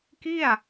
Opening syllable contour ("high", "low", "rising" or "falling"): falling